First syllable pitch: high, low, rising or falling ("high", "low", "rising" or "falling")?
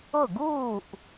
falling